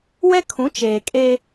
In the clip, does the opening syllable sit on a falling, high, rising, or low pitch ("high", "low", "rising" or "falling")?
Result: high